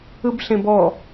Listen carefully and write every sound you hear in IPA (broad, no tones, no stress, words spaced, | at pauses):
ɯbɬẽbɔ